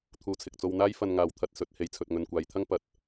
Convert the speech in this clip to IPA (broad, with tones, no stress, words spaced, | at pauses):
t̪ʰuː˨˧t͡sʰɪ˨k̚t͡so˧wn̪aː˥j fɐ˧n ŋaː˧wt̪ʰɐ˧t̚sɵ˨˥t̚ he˧jt͡sʰɵ˧t̚ŋɵ˧n kʷaː˨˧jt̪ʰɐ˥ŋ pɐ˨t̚